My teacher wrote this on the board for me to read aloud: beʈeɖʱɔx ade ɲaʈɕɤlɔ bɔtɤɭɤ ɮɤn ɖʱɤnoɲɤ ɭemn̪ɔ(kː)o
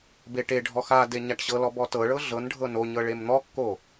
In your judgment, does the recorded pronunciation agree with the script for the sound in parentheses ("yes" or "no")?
yes